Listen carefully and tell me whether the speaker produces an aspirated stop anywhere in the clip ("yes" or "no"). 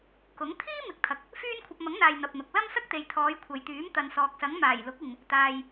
yes